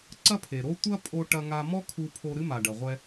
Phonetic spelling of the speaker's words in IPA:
ǀɐ˥pʰe˩ɾo˥ tʷɐ˥pʼo˧ ʈɐ˧ŋa˧mɔ˥ kʰu˧pʰo˧ ɾɨ˥ma˩ɖɐ˩ʁʷɛ˧

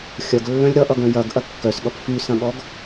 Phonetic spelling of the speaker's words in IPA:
xʲɐɡlːœ̃lʲ ɾʌʔʌɡœ̃ jɐɡ ʔɐkːœsɠʌp fysɐ̃ɠɔɡ

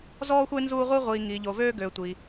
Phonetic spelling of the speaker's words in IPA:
zɔː˦xʷe˦ nzuː˦ ʁʷi˦ ʁʷiː˨ ŋiː˨ʎo˨ vøː˦ɡøː˨tʷi˨

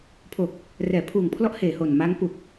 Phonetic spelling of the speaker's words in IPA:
pʰo˨˩k̚ | rɛː˩˦pʰuː˨˩ŋpʰlɔ˦˥ʔheː˨˩ ho˨˩nma˦˥ŋ pu˨˩k̚

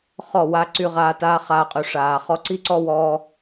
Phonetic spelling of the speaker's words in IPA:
χɔ˦˨wa˧ǀy˧ ʁaː˧ taː˦χaː˧ qʼy˨ʂaː˨ χɔ˧ǀi˦ǀɔ˦wɔː˧

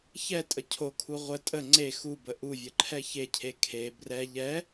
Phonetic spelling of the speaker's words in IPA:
çɛtʼə cʰokʰu ʁʷə tʼə ŋ͡ǀe xubə ʔuvʲəǃʰɛ çecʰe kʰe brɛ ʎɛ

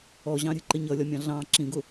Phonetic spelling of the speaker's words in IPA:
ɔʑɑ̃ɾʲɛ̤ǃɪ ɲʌlʲɒmʲɑ̃ ɮɑ̃ ǁĩɡʊ

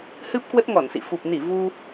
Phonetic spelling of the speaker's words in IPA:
hɨ˦˥p̚kwə˦˥t̚ŋɔ˧˩nsḭ˧˨ fu˨˩p̚ni˧˩ vu˧

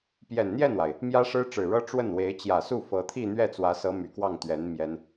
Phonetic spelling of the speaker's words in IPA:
pjɛ˨˩nn̪jɛ˥˩nwa˩ɪ̯ | mjä˥ʂɻ̩˥ʈ͡ʂɻ̩˨˩ɻɤ˥ ʈ͡ʂwə˥˩nwe˧˥ɪ̯ t͡ɕjä˨˩su˥˩ fɤ˧˥t̪ʰi˥˧ n̪ɥɛ˥˩t͡swä˧˥sɤ˧˥ my˨˩kwɑ˥˩ŋ t̪ɥɛ˧˥n mjɛ˥n

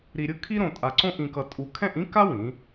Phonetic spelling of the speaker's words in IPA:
ɾi˧ɾʲɯ˥kʰi˥ ɾõ˧tʼa˧ǀõ˥ ʔĩ˧kʌ˧tʼu˧ kʰɛ̃˥˧ʔĩ˥ka˥wĩ˩˧

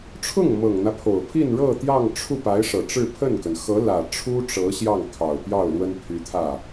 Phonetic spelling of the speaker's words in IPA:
ʈ͡ʂʰʊ˥˩ŋmɤ˨˩ŋn̪ä˦ pʰo˨˩ʊ̯pʰi˥˧nɻɤ˥˧ t̪jɑ˥˧ŋʈ͡ʂʰu˥˩pa˧˥ɪ̯ʂɤ˨˩ ʈ͡ʂɻ̩˥˧ pʰə˥˩nkə˩n xɤ˧˥lä˨˩ ʈ͡ʂʰu˥ʈ͡ʂɤ˧˥ ɕjɑ˥˩ŋkʰɑ˨˩ʊ̯pjɑ˥˩ʊ̯ lwə˥npʰy˧˥t̪ʰä˥˩

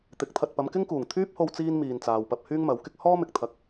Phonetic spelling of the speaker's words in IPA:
t̪ɪ˨˥k̚t̪ʰɐ˧t̚ pɐ˨˧mkɪ˥ŋkuː˨˩ŋ t̪ʰyː˥p̚ho˧w t͡siː˥n miː˨nt͡saː˨wpɐ˧p̚ hyː˥ŋmɐ˨˥wkɪ˥k̚ hɔː˥mɪ˨k̚t̪ʰɐ˨˥k̚

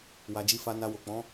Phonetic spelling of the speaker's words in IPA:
wa˨d͡ʒi˧fa˧na˧ wo˨k͡pɔ̃˨˦

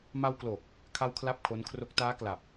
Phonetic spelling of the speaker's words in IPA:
ma˧wklo˨˩k̚ | kʰa˥˩wkʰla˥˩p̚kʰo˦˥nkʰro˦˥k̚ taː˦˥kla˨˩p̚

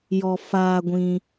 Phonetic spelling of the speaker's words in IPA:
jɔ˧ faː˧ɡʷĩ˧

